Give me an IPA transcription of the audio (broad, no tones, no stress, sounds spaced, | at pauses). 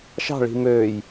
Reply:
ʃ ɑ̤ ɭ i̤ m øː j